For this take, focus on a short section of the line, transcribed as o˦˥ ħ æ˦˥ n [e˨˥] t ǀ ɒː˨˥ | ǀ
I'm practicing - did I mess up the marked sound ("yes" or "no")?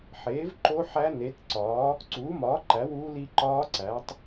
no